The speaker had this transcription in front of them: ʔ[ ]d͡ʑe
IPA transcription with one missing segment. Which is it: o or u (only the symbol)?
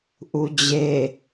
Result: u